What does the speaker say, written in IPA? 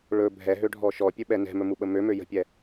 ɭ ɵ bʱ ɛ ɦ ø ɖʱ ɔ ʃ ɔ pʲ ɵ ɓ ɛ n ɛ̤ m ɵ m u ɓ ə m ø m ø j ə̤ pʲ ɛ

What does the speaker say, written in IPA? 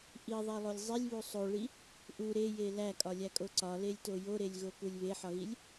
ʔ i ðˤ e lˠ o lʲ zˤ i lʲ β u sˤ o ɭ i | ʔ u ɾ e j e l æ kʼ ɒ lʲ æ kʼ o ǀ ɒ l e lʲ t o j o ɾ e lʲ ɣ o k u lʲ β e ħ ɒ ɣ i lʲ

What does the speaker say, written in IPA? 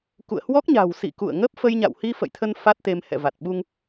k ṵ˧˨ ə̯ h w ɔ˦˥ k̚ ɲ a̤˨˩ w s ḭ˧˨ k ṵ˧˨ ə̯ ŋ ə˦˥ p̚ f ə˧ j ɲ a̰˧˨ w h i˧ f ə̰˧˨ j t̪ʰ ə˧ n f a˦˥ t̚ t̪ e˧ m h ɛ̰˧˨ v a˨˩ t̚ ɓ u˧ ŋ

